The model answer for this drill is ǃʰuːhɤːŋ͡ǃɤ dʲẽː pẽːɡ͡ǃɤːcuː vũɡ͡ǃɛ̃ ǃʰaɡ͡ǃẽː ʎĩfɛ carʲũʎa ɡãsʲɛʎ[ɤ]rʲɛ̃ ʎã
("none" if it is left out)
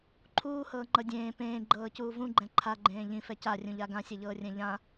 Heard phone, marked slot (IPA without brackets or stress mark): ɤː